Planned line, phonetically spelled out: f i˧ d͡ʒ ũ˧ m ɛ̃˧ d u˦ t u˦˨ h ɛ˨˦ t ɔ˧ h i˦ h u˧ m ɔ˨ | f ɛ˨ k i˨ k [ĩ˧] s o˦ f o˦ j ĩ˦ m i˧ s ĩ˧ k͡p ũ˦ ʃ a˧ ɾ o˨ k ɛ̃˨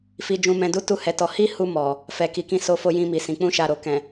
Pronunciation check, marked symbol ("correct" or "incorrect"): correct